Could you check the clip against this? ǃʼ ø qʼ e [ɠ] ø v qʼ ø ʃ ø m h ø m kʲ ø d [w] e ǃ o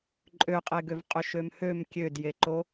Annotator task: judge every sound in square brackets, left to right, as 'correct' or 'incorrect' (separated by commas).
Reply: incorrect, incorrect